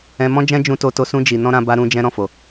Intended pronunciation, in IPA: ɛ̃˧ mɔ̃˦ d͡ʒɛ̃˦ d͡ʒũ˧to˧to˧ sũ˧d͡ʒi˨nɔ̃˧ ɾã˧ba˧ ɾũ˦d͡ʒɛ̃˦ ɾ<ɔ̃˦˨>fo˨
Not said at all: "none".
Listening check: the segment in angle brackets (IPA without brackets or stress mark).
ɔ̃˦˨